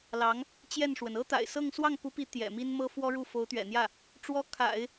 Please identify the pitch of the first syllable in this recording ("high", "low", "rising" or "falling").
rising